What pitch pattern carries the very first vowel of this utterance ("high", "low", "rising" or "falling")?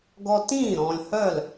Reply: high